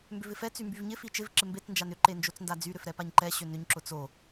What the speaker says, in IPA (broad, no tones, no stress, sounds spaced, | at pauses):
m b ʏ v ɪ f ɛ t͡s y m b y v ɲ ɪ f i t͡ʃ ɪ v ǁ ɪ m b e t͡s n d͡ʒ a n ʏ ǃ e n d͡ʒ o t͡s n d a d͡z y ɾ ʏ f ɾ ɛ p a ɲ ǃ ɛ ɕ ʏ n ʏ ɲ ǁ ʊ t͡s o